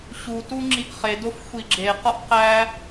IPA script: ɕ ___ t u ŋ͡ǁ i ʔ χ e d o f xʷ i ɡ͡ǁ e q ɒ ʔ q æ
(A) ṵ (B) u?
B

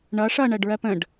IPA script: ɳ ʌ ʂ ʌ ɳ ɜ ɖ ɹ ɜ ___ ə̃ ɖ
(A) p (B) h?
A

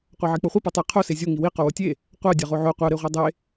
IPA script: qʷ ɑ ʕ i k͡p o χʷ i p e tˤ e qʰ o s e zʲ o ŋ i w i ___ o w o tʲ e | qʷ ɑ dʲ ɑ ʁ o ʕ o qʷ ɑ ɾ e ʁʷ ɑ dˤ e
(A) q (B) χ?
A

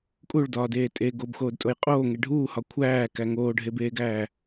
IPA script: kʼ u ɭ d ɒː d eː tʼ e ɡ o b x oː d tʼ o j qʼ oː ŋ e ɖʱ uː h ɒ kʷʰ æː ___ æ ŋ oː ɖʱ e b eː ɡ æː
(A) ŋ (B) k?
B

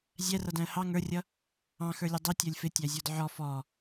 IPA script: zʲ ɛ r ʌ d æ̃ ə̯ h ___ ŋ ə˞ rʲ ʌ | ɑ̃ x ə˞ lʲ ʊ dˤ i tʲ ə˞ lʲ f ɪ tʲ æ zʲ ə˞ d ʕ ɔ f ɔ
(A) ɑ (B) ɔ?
A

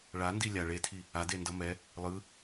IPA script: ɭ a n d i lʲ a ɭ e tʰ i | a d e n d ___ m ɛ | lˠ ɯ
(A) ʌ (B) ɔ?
A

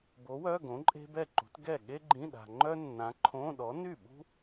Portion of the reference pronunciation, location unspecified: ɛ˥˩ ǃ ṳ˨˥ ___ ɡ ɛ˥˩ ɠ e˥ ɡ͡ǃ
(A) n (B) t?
B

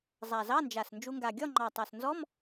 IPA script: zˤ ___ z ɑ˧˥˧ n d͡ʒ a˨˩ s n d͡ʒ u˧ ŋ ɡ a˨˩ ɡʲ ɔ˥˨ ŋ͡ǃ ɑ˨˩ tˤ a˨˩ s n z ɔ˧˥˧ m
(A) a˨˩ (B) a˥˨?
A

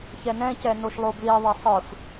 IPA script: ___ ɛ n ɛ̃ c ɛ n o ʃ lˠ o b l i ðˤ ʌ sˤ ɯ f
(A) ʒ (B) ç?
B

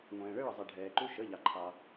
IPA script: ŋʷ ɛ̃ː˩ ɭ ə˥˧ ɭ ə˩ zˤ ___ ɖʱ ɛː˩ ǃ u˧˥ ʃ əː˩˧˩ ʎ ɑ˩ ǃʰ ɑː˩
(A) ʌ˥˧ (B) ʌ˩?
B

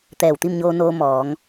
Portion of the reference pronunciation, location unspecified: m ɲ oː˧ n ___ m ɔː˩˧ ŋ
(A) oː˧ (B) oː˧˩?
A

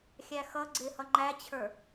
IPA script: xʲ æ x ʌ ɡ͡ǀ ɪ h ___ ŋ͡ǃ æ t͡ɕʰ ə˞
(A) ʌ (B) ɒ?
A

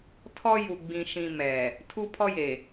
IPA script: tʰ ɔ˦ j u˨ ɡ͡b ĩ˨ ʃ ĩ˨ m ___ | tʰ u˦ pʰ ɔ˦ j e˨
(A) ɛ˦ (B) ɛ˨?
B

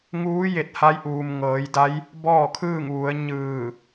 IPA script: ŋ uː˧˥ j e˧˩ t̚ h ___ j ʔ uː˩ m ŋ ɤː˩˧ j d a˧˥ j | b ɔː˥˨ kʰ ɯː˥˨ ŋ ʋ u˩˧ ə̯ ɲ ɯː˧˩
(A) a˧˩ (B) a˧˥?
B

